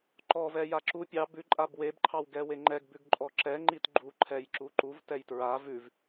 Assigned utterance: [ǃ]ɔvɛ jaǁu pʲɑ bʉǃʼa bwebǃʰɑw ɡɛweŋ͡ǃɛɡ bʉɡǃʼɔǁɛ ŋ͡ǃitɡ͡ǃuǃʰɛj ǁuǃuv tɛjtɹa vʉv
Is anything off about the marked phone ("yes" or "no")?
no